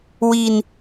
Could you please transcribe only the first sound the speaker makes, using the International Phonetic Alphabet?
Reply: w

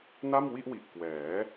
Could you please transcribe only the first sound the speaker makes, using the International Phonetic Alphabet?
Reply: n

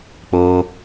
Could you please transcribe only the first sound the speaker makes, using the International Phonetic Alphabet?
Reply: k͡p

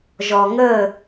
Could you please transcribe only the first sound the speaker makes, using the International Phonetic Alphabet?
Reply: ʒ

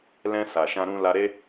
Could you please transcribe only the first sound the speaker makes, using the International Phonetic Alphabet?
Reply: l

